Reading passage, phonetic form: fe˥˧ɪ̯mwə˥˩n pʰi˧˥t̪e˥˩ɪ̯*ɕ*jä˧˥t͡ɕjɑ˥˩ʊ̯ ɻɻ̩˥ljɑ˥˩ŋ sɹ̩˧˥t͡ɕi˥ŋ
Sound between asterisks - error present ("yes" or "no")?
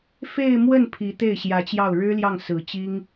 no